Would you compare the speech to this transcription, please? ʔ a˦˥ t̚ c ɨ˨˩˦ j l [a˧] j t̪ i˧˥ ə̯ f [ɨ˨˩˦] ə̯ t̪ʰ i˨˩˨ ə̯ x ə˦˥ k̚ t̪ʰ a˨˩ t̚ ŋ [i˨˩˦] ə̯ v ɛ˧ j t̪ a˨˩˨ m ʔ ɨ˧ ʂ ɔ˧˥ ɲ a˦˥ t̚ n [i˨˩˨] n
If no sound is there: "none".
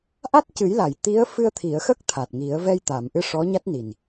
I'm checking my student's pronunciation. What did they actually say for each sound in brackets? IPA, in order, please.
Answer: a˨˩˨, ɨ˧, i˨˩˦, i˨˩

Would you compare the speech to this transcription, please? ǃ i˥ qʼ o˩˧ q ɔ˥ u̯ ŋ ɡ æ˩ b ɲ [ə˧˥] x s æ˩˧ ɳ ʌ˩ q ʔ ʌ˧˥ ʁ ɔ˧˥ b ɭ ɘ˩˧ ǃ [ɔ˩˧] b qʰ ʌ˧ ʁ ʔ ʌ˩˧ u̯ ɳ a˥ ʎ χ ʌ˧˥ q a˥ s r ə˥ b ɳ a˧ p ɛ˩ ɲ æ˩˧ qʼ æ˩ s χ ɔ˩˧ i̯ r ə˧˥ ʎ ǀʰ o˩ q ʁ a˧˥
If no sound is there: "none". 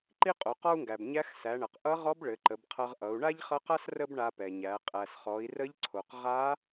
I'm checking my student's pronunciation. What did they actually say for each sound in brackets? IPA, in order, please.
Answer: æ˧˥, ə˩˧

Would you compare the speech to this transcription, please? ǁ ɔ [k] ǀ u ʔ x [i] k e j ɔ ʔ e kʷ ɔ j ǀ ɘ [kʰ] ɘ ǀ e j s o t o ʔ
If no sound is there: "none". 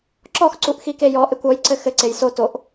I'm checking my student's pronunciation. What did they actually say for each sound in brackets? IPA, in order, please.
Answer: x, i, x

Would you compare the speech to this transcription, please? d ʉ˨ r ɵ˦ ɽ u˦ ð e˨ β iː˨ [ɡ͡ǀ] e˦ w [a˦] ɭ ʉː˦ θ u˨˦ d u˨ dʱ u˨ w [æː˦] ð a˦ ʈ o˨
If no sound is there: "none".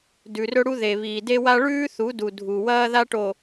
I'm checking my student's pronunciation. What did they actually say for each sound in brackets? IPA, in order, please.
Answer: d, a˦, ɐː˦

